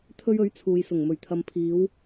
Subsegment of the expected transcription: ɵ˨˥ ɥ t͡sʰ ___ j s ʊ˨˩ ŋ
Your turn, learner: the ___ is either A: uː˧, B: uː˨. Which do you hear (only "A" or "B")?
B